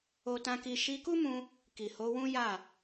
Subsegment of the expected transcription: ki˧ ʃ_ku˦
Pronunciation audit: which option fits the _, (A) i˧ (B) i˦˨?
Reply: A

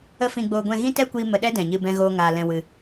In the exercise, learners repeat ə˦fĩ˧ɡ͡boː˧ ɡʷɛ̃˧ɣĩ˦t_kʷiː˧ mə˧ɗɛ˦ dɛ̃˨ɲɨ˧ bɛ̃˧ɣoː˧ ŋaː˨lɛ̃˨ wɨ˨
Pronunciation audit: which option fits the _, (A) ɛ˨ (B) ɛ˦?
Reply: B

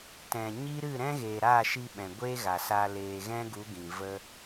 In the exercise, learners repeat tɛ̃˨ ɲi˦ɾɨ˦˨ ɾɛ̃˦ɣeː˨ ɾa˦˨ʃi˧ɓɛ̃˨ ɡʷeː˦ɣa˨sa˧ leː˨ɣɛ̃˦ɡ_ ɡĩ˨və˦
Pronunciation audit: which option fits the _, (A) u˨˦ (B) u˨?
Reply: A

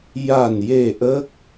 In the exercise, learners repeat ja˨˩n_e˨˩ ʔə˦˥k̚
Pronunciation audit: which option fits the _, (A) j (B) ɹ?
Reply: A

